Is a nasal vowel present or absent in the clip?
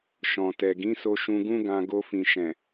present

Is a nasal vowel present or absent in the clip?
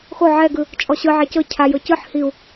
absent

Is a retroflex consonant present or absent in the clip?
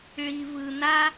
present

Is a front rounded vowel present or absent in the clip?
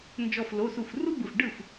absent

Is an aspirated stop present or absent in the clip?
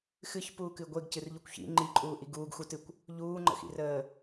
absent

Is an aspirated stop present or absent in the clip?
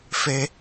absent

